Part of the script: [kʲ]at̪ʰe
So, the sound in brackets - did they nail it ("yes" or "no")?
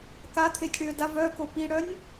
no